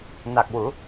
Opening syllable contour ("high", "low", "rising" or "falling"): low